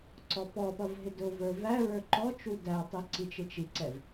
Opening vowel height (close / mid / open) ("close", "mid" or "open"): mid